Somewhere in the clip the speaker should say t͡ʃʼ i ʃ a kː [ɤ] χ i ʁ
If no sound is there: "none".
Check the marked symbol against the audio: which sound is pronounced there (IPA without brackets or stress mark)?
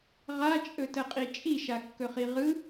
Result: ɵ